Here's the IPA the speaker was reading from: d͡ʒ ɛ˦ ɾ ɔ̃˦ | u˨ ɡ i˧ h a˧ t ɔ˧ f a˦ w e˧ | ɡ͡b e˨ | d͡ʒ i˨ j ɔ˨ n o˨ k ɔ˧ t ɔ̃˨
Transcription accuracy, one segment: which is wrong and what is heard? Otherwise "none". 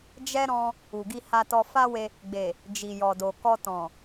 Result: n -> d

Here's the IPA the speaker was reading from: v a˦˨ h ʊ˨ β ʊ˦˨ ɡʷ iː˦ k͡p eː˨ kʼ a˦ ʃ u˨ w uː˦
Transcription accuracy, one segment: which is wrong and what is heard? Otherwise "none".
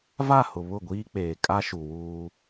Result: none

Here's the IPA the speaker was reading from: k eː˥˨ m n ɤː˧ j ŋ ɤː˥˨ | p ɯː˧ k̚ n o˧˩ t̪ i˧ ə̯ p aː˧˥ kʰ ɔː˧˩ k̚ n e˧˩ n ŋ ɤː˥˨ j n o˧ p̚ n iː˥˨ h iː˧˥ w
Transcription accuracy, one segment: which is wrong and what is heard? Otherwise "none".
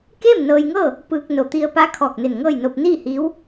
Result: none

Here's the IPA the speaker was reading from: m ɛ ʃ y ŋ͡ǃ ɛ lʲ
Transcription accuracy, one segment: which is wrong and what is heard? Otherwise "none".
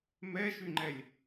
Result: none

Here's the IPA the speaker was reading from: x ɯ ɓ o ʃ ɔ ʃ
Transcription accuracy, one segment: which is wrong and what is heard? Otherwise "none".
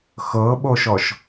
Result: ɯ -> ɤ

